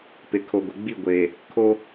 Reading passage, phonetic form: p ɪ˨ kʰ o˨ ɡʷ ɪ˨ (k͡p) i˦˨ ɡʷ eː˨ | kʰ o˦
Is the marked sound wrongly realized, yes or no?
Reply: yes